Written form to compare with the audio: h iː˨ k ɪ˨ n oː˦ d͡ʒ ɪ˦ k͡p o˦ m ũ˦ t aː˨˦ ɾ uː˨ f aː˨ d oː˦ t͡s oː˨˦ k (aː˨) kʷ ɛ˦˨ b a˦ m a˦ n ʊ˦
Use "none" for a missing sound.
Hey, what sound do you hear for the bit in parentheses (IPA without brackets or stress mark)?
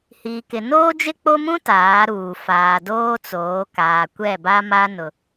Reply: aː˨